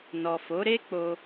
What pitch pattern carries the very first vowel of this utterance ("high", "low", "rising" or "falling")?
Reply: low